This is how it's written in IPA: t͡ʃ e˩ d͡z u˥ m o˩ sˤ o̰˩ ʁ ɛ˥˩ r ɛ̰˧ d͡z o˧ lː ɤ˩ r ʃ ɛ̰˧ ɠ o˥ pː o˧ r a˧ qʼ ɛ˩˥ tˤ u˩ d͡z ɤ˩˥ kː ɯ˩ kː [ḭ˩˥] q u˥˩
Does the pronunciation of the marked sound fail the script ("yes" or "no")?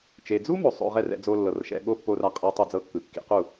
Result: no